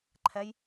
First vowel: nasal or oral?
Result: oral